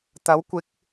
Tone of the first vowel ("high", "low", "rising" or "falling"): rising